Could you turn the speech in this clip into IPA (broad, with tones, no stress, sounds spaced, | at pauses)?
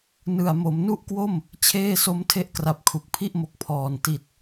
n ɯ˨˩ a̯ m o˩˦ m n u˥˩ ʔ k w o˥˩ m | t͡ɕʰ eː˥˩ s o˦˥ m tʰ e˦˥ ʔ k r a˨˩ p̚ kʰ u˨˩ k̚ pʰ i˥˩ ʔ m o˨˩ k̚ pʰ ɔː˨˩ n t i˨˩ t̚